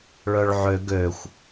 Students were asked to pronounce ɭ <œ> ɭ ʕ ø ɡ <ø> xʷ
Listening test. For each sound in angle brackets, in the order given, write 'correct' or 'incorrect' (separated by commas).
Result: correct, correct